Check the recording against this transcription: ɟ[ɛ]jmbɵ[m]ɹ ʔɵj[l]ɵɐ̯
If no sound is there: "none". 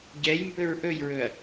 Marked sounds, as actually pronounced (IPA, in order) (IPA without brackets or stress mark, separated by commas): ɛ, none, ɹ